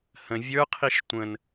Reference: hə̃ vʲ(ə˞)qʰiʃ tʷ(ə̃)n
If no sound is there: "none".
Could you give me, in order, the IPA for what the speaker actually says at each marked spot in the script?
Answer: ə˞, ə̃

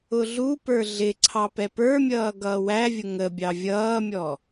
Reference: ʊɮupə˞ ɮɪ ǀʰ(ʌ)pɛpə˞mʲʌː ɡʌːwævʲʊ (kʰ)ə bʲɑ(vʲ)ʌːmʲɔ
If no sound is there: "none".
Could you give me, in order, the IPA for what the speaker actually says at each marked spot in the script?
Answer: ɑ, ŋ, vʲ

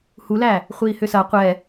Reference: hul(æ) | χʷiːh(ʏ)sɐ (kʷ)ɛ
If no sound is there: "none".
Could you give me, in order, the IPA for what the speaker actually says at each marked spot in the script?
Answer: æ, ʏ, qʷ

